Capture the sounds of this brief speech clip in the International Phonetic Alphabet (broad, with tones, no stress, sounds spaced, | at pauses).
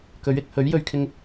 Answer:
k ɵ˨˥ ɥ ɪ˨ k̚ h ɵ˨˥ ɥ j ɵ˧ ɥ kʰ ɪ˥ ŋ